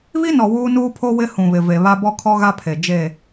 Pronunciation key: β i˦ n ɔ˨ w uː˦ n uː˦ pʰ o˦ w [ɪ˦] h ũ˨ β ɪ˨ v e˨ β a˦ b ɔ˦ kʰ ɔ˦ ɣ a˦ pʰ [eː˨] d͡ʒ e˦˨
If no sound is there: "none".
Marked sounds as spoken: ɪ˦, e˨

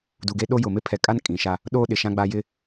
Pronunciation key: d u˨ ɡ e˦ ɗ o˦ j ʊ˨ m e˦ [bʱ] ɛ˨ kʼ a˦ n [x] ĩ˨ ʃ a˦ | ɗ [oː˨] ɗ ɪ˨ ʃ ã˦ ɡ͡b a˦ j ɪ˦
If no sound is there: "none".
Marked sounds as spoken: pʰ, kʼ, oː˦

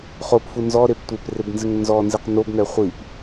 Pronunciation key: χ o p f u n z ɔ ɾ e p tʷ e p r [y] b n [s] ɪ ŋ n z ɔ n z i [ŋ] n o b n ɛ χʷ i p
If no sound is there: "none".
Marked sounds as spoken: e, z, q

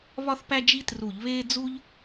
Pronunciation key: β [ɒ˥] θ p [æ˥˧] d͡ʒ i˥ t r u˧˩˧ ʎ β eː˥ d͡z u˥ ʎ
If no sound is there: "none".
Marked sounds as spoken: ɒ˥, æ˥

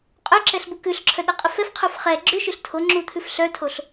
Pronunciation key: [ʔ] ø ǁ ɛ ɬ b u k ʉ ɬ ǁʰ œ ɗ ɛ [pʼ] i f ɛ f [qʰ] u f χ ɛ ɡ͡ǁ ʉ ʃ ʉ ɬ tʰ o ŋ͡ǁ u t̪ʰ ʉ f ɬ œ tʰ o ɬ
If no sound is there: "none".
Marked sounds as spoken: qʼ, qʼ, qʰ

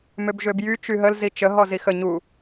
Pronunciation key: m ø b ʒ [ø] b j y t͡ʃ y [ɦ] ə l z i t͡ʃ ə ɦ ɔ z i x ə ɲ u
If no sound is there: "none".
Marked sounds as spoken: ø, ɦ

